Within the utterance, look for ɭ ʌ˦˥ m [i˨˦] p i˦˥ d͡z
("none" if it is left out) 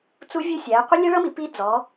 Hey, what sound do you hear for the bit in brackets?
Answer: i˨˦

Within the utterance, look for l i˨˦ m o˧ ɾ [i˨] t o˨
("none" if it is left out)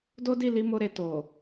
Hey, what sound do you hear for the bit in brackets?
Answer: e˨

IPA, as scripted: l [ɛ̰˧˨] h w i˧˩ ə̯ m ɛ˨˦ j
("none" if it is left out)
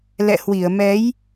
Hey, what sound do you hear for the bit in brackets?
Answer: ɛ̰˧˨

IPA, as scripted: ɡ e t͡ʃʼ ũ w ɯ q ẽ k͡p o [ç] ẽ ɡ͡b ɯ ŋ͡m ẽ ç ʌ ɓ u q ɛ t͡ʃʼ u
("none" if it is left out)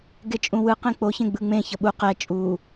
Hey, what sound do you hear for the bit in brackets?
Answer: ç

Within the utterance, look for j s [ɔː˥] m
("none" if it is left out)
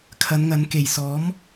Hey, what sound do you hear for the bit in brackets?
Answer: ɔː˨˥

